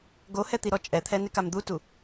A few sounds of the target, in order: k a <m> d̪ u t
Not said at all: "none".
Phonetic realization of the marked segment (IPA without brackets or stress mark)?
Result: m